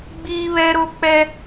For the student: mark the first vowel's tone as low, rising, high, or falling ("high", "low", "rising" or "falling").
high